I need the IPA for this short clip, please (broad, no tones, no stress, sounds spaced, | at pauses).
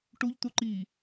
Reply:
ʈ u ʎ t̪ u ǃ i